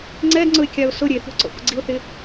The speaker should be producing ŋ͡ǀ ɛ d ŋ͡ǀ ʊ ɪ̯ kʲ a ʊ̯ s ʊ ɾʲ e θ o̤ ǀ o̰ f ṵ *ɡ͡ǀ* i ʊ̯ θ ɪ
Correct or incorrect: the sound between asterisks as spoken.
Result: correct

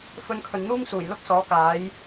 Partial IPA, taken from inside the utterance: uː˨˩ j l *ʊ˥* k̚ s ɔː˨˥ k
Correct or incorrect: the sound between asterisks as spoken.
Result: correct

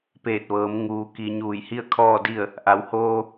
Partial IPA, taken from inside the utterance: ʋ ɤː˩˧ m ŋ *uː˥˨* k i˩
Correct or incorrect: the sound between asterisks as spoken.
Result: incorrect: uː˩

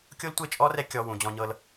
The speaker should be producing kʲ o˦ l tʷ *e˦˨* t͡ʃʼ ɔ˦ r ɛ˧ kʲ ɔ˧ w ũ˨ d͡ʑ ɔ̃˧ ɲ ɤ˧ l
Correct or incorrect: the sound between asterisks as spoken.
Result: correct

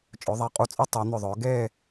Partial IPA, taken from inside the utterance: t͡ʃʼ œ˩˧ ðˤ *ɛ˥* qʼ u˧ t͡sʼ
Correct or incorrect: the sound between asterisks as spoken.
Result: incorrect: ɛ˩˧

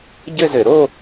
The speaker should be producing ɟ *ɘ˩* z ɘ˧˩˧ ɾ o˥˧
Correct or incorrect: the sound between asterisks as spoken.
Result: incorrect: ɘ˥˧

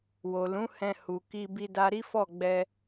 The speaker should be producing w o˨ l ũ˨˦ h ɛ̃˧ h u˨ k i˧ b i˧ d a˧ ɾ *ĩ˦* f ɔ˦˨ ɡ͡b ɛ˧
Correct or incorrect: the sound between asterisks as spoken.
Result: incorrect: i˦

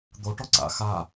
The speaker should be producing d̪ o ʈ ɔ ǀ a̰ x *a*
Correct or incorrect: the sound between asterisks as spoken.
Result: correct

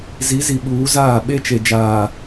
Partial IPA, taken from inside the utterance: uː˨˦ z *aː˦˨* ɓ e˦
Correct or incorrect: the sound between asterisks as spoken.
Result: correct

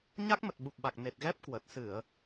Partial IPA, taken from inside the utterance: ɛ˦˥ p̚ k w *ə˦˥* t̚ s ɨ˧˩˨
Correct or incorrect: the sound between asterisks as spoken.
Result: incorrect: ə˨˩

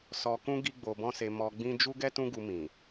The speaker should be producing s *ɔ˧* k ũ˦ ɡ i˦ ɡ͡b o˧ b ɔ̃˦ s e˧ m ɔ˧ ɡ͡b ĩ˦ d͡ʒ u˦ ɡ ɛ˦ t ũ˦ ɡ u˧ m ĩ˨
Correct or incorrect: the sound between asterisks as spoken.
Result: correct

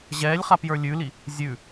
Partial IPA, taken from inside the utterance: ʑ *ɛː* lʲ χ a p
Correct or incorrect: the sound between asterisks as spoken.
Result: correct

